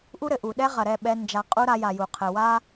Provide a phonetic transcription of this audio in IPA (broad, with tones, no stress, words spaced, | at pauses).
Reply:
ʔu˦ɾɘ˨ʔu˨ɗɛ˦ ʁɐ˨ɾɛ˦˨ɓɛ˧ nd͡ʒa˧ qʼu˦ɾa˧ja˨ju˨ qʰɘ˨wa˦